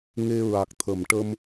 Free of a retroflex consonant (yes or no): no